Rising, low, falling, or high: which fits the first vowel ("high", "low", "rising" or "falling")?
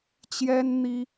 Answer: high